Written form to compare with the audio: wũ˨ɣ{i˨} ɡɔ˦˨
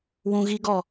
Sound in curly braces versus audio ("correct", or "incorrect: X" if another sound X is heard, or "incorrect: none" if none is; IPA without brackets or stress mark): incorrect: i˦